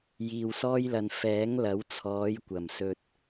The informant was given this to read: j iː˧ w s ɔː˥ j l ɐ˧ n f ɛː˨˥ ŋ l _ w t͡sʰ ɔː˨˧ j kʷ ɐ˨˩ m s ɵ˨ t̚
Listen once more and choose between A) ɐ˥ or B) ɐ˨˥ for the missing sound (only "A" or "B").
B